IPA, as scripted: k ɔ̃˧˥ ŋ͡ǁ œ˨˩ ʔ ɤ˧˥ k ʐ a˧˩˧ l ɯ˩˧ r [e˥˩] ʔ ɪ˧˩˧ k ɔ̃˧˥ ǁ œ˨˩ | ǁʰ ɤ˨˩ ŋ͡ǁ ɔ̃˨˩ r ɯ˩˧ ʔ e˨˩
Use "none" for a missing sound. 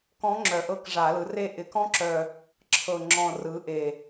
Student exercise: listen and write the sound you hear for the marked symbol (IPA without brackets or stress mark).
e˥˩